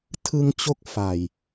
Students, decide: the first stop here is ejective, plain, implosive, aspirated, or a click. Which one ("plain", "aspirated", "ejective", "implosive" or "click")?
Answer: aspirated